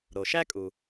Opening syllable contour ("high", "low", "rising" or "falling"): low